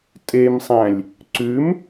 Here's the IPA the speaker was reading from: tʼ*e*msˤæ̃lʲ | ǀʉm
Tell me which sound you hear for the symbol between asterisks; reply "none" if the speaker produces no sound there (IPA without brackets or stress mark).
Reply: e